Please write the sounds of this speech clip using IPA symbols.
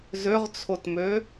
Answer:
z ø ʁ t͡sʰ o t m ø

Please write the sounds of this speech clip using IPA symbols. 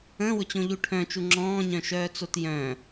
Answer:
ə̃ː w ʊ t͡ɕ õ ʎ u ʈʰ œ̃ t͡ʃ u ŋ͡ǁ ɔ̃ː ɲ œ̃ ʃ œː t͡s o t j œ̃

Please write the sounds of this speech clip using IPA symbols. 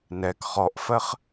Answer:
n ɛ k χ ɔ ʔ f ɜ χ

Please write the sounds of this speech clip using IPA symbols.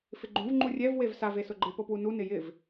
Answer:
f ɪ ɡ͡ǃ ũ v ŋ͡ǃ u rʲ ɛ v w e v s a v e s ʊ ɡ͡ǃ ɪ p o p w u n u n ɪ j ɪ v

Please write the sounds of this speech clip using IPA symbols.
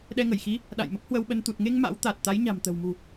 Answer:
ɗ ɛ˧ ŋ ə˧˩ j x i˨˦ | ɗ a̰˧˨ j m ə˦˥ p̚ h w ə˧ w ɓ ə˧ n t̪ u˨˩ t̚ ŋ e˧ ŋ m a̰˧˥ w t̪ a˨˩ t̚ t̪ a˨˦ j ɲ a̤˨˩ m t̪ ə̤˨˩ w m ṳ˨˩

